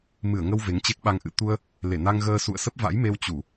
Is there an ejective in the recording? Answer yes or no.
no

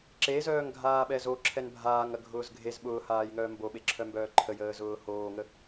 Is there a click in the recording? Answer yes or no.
yes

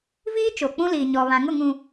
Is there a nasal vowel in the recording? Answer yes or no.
yes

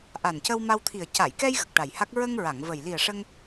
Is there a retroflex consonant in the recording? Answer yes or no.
yes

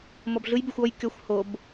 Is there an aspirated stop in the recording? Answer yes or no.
no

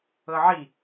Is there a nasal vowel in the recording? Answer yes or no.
no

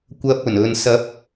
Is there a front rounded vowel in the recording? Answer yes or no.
no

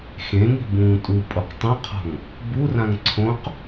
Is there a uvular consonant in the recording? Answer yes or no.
yes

